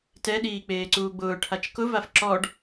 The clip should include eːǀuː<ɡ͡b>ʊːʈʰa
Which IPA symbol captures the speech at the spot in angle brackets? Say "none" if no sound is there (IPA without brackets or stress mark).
ɡ͡b